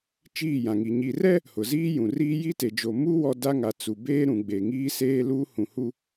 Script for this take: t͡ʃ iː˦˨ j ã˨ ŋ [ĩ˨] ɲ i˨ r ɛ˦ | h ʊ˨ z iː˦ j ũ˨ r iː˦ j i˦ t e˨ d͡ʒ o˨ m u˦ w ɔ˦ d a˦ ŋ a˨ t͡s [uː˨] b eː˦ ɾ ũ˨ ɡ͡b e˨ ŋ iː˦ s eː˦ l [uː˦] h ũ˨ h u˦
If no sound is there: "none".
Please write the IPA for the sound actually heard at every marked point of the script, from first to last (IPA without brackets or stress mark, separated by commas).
i˨, u˨, uː˦